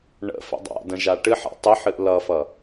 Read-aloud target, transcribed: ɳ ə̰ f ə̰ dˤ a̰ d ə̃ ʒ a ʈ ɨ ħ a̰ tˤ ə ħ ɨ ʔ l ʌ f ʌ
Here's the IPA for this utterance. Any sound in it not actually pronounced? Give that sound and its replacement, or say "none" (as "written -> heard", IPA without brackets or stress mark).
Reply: none